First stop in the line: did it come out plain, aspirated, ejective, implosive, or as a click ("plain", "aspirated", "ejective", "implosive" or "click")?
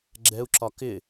click